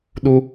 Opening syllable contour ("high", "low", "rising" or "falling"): high